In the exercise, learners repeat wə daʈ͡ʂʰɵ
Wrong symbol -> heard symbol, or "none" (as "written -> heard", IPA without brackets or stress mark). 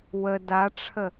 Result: ɵ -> ə